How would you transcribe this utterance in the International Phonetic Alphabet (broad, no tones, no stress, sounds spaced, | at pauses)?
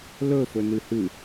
l ɵ f ɵ n ɨ h ɨ